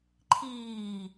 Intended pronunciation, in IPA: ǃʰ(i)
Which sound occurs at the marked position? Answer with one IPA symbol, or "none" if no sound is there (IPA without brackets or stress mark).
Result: iː